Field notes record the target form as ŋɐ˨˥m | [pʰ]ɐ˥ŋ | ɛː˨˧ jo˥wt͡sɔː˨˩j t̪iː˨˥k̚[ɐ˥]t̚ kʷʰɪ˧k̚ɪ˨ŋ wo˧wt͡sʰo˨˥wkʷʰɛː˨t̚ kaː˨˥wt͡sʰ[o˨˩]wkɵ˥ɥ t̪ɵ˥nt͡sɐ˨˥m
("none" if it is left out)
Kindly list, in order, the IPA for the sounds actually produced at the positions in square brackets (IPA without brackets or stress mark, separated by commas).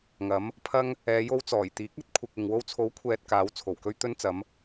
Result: pʰ, ɐ˥, o˨˩